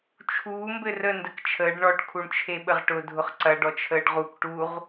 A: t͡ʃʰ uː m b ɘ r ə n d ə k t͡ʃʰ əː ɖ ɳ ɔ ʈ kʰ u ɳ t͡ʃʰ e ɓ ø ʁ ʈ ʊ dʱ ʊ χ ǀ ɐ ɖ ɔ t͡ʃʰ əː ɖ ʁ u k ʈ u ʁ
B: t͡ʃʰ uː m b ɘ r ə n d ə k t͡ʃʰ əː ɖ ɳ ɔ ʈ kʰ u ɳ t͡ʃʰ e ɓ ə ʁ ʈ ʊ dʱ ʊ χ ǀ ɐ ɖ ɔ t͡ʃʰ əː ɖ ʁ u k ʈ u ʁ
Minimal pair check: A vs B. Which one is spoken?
B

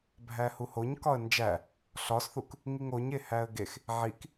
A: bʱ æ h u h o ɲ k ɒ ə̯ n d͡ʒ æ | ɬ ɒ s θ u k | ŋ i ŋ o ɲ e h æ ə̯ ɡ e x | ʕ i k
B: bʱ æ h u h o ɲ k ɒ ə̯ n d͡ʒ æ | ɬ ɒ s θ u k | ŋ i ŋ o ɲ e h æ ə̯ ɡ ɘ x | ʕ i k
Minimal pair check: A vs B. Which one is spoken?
A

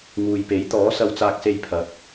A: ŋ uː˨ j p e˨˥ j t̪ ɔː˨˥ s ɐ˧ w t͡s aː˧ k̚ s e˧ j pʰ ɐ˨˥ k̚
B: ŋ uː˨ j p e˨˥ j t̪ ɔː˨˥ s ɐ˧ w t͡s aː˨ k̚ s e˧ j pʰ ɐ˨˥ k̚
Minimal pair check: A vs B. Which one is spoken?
A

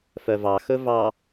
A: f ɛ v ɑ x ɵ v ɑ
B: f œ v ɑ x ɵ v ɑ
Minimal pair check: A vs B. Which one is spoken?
B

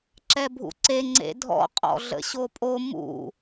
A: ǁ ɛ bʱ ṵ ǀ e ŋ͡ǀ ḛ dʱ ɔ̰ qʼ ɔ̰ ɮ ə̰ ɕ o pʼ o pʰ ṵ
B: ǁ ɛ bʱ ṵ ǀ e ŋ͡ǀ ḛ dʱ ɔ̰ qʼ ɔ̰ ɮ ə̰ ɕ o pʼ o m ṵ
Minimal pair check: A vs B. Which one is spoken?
B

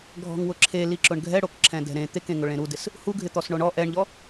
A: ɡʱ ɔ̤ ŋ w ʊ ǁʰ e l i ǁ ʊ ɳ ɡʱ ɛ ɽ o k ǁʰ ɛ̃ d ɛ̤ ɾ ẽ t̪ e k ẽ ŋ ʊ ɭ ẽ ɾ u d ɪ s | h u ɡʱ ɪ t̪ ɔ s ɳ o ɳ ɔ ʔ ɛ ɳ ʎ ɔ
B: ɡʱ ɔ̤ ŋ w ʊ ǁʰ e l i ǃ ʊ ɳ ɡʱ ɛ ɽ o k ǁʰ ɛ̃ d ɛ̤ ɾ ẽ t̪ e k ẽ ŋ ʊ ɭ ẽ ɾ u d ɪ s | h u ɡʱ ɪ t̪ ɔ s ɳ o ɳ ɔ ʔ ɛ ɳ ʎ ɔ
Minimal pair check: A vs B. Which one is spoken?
A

